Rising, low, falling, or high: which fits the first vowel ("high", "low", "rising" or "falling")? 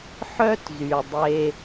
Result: high